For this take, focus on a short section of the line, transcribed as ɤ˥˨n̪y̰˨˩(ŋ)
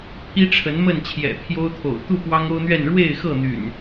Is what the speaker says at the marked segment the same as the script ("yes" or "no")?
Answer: no